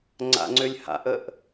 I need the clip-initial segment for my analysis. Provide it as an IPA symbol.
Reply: ŋ͡ǀ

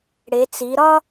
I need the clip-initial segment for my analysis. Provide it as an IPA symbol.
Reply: ɽ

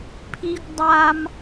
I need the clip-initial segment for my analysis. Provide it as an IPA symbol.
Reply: pʰ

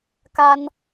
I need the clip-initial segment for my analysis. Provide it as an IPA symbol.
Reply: k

